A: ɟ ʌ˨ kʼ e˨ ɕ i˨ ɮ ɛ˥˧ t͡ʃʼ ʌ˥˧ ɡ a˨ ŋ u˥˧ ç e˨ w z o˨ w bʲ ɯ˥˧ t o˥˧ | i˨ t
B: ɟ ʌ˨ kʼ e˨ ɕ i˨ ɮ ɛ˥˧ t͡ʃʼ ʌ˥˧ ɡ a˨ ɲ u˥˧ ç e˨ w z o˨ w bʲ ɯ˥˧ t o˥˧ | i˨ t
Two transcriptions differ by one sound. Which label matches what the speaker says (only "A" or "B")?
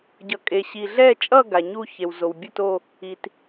B